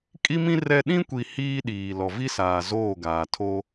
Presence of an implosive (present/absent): present